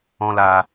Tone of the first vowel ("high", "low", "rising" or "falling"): high